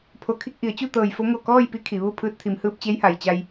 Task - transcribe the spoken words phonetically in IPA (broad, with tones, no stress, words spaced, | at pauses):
pʰo˧˩kʰi˥˨k̚ʔi˩˧ə̯ t͡ɕu˥˨t̪ɤː˧˩jfo˧˥ ŋo˧˩kɔː˥˨jpi˧˥ kʰi˩˧ʋu˥˨ pʰɯː˧t̚t̪ʰi˩˧mhɯː˧p̚ t͡ɕe˧˥jha˩jt͡ɕa˧j